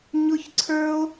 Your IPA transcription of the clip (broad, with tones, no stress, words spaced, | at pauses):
ɲʊ˦çǀʰə˞˦o̯